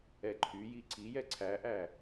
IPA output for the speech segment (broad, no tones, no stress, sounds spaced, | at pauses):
ɛ ǃʰ y j i ǀ i j ɛ ǀʰ æ ʔ æ